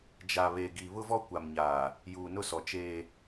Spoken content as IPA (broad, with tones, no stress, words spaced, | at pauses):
d͡ʒa˨βe˨ɡi˨ βʊ˦vɔ˦kʷa˨mɲaː˨ | juː˨nʊ˦sɔ˨ t͡ʃeː˦